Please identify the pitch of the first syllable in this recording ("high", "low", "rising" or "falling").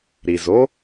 low